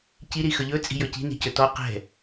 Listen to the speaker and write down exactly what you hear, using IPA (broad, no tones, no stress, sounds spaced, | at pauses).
c i ɾ i x ɵ ʎ ɵ t͡sʼ i̤ j ɵ c i̤ n i̤ c ɵ t ɔ q ɛ̤